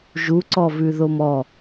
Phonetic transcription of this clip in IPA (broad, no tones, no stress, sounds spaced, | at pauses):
ʒ u ǀ ɔ v ʉ ð o m ɔ